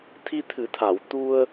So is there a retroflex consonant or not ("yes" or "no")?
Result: no